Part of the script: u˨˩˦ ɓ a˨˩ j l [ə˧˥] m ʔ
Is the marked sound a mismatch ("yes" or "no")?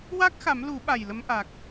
no